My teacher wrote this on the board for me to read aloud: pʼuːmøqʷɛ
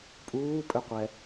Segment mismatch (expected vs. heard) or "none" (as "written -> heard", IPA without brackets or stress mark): m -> pʼ